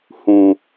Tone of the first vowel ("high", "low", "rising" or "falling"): low